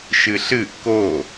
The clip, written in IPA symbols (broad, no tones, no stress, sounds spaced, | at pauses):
ʃ ɨ ɬ ɨ ʔ k o